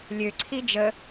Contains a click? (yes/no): yes